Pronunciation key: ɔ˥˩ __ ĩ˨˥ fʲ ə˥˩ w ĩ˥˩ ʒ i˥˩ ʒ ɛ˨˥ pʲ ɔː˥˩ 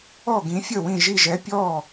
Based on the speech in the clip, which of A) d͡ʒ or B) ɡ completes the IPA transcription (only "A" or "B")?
B